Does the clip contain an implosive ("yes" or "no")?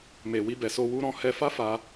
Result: no